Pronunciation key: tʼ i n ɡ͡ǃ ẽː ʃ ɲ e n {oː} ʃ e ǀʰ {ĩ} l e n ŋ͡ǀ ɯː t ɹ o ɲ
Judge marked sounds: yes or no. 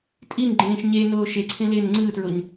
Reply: yes, no

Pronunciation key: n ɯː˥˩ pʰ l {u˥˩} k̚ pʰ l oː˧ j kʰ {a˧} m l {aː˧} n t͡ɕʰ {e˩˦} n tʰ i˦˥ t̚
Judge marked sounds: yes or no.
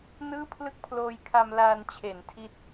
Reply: no, yes, yes, yes

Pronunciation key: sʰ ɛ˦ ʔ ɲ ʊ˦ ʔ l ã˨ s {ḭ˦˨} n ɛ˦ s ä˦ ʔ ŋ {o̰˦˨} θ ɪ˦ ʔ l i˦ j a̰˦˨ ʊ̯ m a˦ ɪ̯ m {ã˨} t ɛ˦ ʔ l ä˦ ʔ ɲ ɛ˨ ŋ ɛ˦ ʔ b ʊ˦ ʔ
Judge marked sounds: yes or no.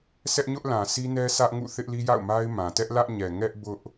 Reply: no, no, yes

